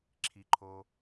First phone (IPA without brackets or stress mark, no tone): ǁʰ